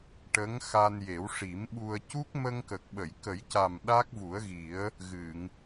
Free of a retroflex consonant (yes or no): no